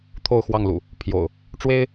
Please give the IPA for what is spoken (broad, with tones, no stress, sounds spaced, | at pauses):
t̪ʰ o˥˨ ʊ̯ x w ɑ˥˨ ŋ l ṵ˨˩ | pʰ j o̰˨˩ ʊ̯ | ʈ͡ʂ w e˦ ɪ̯